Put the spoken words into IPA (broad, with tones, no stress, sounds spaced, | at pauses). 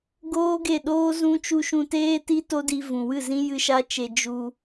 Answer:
ɡ oː˦ ɡ e˦˨ ɗ oː˦ z ũ˦ t͡ʃ u˧ ʃ ũ˧ t eː˦ t i˦ t o˦ d i˧ v ũ˨ w ɨ˦˨ z ĩ˦ j ɨ˦ ʃ a˦ t͡ʃ e˧ d͡ʒ u˧